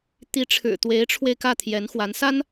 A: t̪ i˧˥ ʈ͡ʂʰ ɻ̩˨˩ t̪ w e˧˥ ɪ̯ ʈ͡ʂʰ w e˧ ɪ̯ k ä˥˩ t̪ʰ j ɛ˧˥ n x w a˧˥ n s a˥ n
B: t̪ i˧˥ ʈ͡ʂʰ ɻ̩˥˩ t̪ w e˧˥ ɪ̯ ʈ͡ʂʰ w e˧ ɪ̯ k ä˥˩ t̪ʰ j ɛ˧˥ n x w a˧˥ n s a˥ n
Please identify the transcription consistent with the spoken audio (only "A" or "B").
A